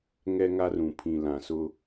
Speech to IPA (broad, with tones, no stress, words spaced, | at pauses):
ŋɛ˦ŋa˦rũ˨ pʰĩ˨lã˨sʊ˦